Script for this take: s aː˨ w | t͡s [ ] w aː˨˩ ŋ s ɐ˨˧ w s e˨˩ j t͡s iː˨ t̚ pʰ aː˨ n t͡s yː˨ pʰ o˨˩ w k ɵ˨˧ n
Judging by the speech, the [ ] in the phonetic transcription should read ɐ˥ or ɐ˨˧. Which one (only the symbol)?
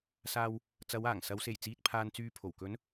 ɐ˨˧